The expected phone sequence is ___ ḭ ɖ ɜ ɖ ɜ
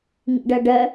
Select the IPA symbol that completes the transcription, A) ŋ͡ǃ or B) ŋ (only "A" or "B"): B